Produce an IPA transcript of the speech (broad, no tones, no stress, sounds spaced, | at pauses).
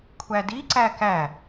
kʷʰ æ d i ǀ æ k æ